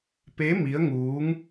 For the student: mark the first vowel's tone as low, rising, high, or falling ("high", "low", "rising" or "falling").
rising